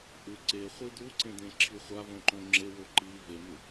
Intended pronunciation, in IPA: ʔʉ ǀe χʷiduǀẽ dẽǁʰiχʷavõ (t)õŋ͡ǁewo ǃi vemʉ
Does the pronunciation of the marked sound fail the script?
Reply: yes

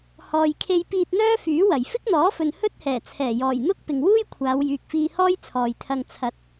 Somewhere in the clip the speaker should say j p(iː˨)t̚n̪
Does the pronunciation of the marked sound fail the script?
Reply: yes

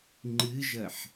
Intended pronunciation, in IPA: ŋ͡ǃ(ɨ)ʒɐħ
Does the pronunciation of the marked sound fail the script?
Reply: no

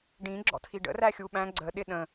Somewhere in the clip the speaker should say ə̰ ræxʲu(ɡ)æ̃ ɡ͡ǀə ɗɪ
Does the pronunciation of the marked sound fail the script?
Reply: yes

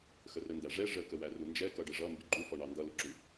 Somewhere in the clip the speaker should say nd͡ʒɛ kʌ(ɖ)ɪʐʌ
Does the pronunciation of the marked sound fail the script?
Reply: no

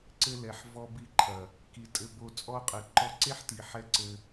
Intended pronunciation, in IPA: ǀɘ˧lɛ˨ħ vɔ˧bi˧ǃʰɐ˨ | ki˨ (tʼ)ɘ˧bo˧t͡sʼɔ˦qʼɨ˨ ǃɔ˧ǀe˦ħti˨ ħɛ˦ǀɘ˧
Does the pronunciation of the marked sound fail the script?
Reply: no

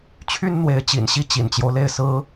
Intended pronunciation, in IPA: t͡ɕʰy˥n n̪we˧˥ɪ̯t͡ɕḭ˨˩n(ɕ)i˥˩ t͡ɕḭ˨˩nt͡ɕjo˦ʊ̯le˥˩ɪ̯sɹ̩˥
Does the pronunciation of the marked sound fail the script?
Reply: no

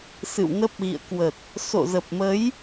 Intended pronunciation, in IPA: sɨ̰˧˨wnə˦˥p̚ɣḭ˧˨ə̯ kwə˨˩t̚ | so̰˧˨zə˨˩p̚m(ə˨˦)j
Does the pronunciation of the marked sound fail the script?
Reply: no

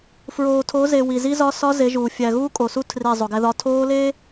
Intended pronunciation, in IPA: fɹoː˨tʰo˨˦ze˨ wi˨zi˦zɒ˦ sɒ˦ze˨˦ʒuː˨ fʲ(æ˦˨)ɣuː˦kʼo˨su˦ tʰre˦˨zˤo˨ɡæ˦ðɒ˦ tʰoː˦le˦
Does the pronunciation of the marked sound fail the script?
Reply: yes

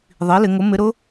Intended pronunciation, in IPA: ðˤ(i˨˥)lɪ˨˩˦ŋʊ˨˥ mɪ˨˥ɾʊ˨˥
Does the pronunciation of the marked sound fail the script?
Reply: no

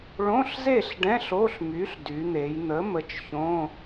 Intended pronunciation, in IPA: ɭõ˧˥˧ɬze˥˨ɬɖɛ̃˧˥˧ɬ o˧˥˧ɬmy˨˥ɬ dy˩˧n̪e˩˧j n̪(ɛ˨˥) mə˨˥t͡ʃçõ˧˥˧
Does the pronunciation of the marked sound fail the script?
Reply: yes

